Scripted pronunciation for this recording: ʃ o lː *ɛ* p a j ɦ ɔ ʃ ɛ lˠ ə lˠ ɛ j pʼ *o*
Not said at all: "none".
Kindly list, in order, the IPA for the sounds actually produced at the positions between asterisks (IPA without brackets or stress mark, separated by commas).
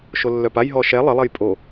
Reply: œ, o